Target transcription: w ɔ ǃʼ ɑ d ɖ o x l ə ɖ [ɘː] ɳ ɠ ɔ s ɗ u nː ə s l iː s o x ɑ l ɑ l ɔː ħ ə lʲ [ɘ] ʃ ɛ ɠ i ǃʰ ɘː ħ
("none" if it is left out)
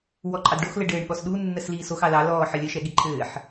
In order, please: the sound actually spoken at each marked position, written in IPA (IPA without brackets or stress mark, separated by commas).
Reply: ɘː, ɘ